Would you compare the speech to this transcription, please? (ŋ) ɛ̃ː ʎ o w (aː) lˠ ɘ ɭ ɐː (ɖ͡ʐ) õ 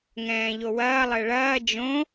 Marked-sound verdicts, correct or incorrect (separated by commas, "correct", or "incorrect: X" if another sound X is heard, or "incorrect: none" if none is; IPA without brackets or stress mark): correct, incorrect: ɐː, incorrect: d͡ʒ